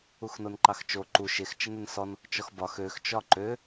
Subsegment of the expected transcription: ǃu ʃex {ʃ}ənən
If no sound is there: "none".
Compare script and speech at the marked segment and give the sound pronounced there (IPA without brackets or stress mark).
t͡ʃ